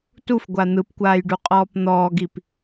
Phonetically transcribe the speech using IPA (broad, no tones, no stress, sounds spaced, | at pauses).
t u f ɡʷ a n̪ ɯ p kʷ aː j ɖ u qʼ ɔː p n̪ ɔː ɡ i p